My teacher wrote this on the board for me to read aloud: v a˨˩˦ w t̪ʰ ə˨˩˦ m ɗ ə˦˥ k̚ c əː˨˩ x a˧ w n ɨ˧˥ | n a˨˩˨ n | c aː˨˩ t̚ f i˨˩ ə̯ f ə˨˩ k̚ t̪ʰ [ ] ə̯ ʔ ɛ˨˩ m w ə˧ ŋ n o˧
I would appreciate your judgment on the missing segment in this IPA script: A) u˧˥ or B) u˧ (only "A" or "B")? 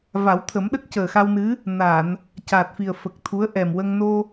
A